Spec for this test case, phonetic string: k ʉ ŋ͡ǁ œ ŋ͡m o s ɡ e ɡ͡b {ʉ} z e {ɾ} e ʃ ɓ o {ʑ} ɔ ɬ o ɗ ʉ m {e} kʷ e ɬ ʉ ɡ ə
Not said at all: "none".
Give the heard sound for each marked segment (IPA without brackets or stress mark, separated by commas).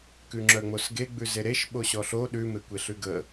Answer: ʉ, ɾ, ɕ, e